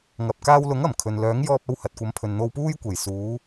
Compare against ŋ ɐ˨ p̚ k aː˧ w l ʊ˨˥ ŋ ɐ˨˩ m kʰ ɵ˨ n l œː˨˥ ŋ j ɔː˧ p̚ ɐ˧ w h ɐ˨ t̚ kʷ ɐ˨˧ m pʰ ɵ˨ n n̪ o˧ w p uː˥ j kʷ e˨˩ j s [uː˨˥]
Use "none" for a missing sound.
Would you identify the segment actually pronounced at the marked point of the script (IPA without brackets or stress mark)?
uː˨˧